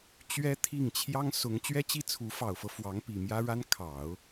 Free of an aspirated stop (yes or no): no